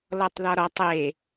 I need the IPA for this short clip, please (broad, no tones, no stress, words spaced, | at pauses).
lɔtˤðɒɾɔtˤ e